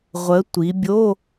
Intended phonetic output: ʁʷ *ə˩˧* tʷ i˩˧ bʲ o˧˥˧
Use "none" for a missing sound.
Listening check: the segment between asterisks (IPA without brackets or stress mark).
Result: ə˩˧